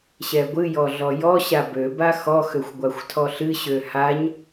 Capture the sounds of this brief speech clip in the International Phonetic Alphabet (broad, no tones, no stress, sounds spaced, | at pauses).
ɕ ɛ ɡʷ ɨ j ɔ ɮ ɔ j ɔ ɕ a b ø b a x ɔ x ø xʷ ɡʷ a xʷ tʰ ɔ ɬ ɨ ɕ ø h a ɲ